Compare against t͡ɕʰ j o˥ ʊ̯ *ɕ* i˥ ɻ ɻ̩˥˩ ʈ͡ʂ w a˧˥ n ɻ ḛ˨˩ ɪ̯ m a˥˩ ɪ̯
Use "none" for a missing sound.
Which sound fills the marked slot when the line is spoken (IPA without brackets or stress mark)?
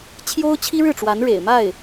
t͡ɕʰ